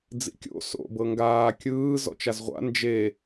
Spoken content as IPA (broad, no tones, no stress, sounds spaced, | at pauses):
d͡z ḭ kʲ o̰ s o̰ b ɤ ŋ ɡ aː kʲ ɯː z ɔ̰ t͡ʃ a z ʁʷ a̰ n d͡ʒ e